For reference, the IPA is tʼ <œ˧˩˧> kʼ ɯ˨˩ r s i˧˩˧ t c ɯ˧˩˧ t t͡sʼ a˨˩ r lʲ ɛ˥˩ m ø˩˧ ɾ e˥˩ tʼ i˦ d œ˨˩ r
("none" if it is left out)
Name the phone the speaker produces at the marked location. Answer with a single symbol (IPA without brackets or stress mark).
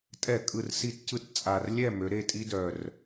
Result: ɛ˧˩˧